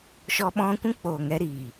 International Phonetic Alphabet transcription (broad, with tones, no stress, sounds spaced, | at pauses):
ʃ ɔ˧ ɓ ɔ̃˧ kʷ ũ˦ k͡p oː˨ ŋ ɛ˧ ɾ iː˨